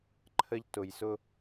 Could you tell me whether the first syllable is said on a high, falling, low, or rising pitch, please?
high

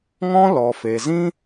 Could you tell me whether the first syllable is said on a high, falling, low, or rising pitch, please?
high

